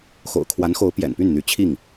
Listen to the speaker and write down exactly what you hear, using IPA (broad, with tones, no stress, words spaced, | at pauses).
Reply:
xo̰˨˩ʊ̯kʰwa˧˥nxo˧˥ʊ̯ pjɛ̰˨˩npy˥˩nn̪y˧˥ t͡ɕʰi˥˩ŋ